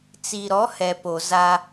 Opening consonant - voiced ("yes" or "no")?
no